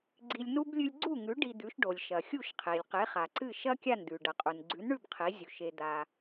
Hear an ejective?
yes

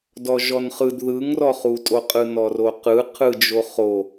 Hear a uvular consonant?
yes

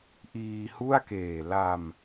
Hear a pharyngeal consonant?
no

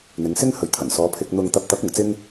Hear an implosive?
no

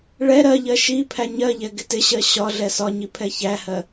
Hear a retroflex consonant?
yes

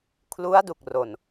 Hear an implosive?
no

